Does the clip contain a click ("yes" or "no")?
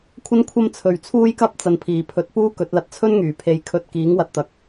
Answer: no